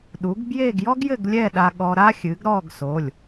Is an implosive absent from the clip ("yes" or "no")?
no